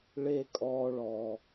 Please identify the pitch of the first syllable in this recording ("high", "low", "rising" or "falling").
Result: high